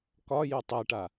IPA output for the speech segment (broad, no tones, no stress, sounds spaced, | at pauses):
k ɒ j y tˤ e ʈ a